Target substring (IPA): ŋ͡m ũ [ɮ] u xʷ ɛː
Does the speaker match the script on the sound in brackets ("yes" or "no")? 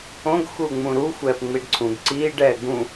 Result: no